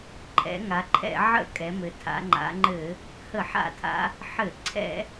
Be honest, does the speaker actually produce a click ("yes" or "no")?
yes